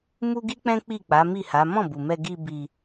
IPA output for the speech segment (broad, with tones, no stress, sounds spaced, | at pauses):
m u˦ ɡ i˦ k͡p ɛ̃˦ k͡p i˦˨ k͡p a˨˦ m i˦˨ h a˨˦ m ɔ̃˦˨ b u˨ m ɛ˧ ɡ i˧ b i˧